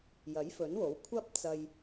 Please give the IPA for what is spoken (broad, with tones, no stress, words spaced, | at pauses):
jɐ˨˥jfɵ˨˥nwo˨˥w kʷʰɐ˥p̚t͡sɐ˧j